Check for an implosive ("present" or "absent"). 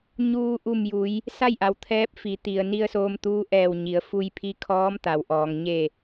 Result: absent